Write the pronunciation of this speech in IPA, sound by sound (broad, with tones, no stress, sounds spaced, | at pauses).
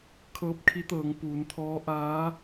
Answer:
kʰ ɤː˧ p̚ kʰ i˧˥ t̪ ɤː˩˧ ŋ p uː˩˧ n t̪ʰ ɔː˧˥ ʔ aː˧˥